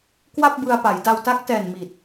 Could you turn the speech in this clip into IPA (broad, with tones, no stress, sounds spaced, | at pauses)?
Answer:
k w a˥˩ p̚ b ɯ˧ a̯ p a˩˦ j d a˧ w t a˦˥ k̚ t ɛː˨˩ n m i˨˩ t̚